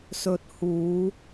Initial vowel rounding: rounded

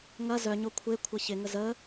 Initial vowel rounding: unrounded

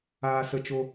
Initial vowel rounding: unrounded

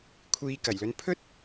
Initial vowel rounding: unrounded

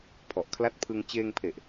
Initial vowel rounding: rounded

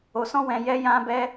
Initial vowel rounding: rounded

